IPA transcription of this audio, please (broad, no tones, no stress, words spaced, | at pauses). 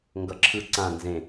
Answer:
ŋɡʌǁʰɯ ǀã nzẽ